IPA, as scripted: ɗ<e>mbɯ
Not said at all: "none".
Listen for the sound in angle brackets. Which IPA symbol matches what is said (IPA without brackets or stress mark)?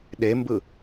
e